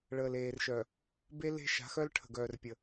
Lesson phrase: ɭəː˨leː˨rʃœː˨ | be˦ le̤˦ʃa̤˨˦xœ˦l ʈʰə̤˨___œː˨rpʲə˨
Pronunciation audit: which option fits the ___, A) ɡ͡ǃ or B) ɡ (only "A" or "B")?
B